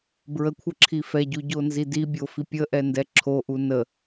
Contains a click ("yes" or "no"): yes